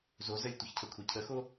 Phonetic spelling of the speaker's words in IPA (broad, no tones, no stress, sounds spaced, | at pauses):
z o z ə lʲ tʷ ɪ ç cʰ ə kʷʰ e cʰ ə x o